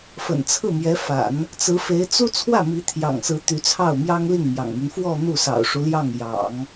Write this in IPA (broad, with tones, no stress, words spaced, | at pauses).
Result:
fə̰˨˩nt͡sʰɹ̩˥˩mjɛ˧˥fa̰˨˩˦n | t͡sɹ̩˧˥fe˧˥ɪ̯ t͡su˥ t͡sʰwä˥˩mi˧˥t̪ʰjɑ̰˨˩ŋsɹ̩˧˥ t̪y˧˥t͡sʰɑ˥˩ʊ̯mjɑ˥ŋ li˥˩ŋmjɑ̰˨˩ŋmy˦n fwɔ˥˧ n̪u˥˩sɑ̰˨˩ʊ̯ʂu˦ljɑ˥˩ŋ jɑ̰˨˩˦ŋ